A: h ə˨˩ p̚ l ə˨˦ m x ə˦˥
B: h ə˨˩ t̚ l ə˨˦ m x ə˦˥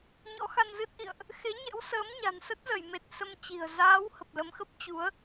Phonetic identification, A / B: A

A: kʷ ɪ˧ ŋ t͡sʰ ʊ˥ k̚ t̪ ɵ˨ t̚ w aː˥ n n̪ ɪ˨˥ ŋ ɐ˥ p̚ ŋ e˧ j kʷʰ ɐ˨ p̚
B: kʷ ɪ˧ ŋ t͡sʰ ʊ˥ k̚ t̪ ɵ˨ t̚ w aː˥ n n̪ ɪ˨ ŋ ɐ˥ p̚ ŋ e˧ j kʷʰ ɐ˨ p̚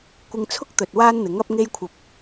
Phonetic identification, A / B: A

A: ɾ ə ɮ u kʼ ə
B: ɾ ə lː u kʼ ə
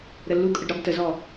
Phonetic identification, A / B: B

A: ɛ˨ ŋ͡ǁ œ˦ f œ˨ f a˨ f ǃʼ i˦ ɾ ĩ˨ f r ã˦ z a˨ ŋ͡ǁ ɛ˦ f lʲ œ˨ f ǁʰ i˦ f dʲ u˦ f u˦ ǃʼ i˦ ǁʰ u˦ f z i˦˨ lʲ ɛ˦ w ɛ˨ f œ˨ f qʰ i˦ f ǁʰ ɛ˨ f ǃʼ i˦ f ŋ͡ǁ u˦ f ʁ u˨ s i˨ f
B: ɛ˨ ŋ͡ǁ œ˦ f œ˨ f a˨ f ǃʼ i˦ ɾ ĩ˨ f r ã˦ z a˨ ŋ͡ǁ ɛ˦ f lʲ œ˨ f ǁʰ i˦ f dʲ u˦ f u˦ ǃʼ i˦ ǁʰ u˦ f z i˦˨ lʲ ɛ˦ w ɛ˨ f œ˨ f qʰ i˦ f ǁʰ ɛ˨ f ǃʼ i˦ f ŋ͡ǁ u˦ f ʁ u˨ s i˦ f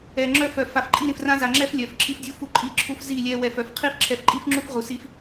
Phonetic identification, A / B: B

